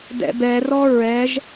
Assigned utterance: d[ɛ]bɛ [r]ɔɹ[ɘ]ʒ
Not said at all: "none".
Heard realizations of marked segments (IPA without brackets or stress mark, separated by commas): ɛ̰, r, ɛ